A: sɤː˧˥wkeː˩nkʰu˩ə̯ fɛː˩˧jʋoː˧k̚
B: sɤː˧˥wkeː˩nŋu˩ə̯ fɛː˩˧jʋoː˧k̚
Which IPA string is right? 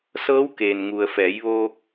B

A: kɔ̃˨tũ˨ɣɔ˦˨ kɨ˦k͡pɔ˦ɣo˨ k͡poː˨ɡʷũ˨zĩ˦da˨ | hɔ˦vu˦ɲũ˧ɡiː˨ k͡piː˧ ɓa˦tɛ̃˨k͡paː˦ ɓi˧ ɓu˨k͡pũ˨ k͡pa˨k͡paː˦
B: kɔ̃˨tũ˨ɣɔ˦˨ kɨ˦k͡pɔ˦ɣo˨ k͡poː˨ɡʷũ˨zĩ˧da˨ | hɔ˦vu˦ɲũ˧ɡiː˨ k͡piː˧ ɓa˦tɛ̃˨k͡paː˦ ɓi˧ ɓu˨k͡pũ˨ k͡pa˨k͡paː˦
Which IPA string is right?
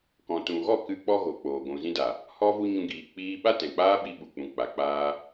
A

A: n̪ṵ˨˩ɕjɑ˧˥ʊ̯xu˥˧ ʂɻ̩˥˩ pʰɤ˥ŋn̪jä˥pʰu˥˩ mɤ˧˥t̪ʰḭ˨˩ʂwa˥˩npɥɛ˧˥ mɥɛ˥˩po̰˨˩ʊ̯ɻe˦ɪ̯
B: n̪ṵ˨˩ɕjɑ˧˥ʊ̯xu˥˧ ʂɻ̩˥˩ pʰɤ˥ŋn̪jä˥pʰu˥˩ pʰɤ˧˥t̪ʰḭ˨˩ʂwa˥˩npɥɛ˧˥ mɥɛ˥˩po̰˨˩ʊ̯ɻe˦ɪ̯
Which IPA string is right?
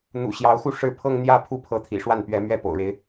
B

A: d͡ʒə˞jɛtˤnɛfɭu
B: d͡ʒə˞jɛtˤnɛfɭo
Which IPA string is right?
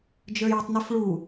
A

